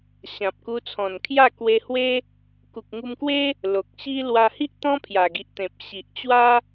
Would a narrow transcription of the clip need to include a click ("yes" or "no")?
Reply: no